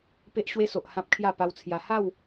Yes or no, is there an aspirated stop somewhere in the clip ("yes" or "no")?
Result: yes